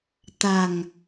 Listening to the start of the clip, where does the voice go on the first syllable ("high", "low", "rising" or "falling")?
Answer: low